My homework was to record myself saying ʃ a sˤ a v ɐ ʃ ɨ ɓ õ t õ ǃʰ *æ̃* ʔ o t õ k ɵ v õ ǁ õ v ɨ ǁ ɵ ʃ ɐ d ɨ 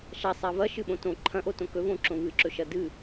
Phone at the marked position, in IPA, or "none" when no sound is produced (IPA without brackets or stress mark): ɐ̃